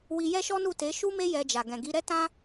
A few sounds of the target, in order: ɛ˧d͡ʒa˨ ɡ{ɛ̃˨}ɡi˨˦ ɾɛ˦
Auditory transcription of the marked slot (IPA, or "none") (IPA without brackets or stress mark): ɛ̃˨